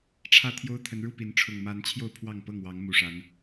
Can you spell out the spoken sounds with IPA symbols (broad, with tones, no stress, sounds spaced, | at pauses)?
ʈ͡ʂʰ ä˥˨ t̪ʰ j o˦ ʊ̯ t̪ʰ ə˨˦ n ɻ u˥˨ p i˨˦ n ʈ͡ʂʰ ʊ˨˩ ŋ m a˨˦ n t͡ɕʰ j o˥˨ ʊ̯ pʰ w ɑ˥˨ ŋ p ɤ˥˨ ŋ w ɑ˨˦ ŋ m u˨˩ ʂ a˨˦ n